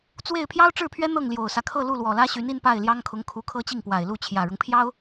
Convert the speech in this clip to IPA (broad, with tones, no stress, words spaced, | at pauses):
t͡swe˥˩ɪ̯ pʰjɑ˥ʊ̯ʈ͡ʂɻ̩˥˩pʰɥɛ˥ n̪ɤ˥˩ŋljo˨˩ʊ̯sä˦ kʰɤ˥˧ lu˥˩lwɔ˨˩lä˥ɕy˧˥n i˥˧npa˥˩ɪ̯ljɑ˥ŋkʰʊ˧˥ŋ kʰu˧˥kʰɤ˥t͡ɕi˥˩ŋpwa˨˩ɪ̯ lu˥˩t͡ɕʰjä˨˩ɻʊ˦ŋpʰjɑ˥ʊ̯